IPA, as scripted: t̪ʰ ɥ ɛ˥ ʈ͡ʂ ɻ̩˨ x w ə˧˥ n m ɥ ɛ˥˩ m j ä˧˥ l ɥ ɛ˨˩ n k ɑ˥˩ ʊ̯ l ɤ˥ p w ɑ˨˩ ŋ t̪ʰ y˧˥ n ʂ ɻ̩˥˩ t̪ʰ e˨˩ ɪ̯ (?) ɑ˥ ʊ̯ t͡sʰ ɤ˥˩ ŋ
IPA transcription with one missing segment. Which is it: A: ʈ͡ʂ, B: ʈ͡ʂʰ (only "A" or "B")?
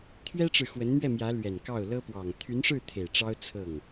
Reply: A